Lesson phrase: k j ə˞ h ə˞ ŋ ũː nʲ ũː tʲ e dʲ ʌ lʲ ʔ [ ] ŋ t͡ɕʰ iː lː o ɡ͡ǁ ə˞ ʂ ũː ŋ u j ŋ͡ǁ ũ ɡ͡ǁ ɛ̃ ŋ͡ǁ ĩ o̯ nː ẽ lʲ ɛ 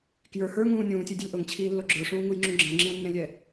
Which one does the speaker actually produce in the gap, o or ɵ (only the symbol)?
o